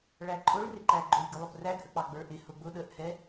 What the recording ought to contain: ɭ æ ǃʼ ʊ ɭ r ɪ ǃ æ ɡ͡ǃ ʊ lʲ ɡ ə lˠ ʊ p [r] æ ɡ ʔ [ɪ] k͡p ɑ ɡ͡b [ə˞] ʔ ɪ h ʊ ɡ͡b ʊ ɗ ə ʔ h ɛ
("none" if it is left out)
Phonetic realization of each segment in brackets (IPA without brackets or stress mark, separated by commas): r, ə, ə˞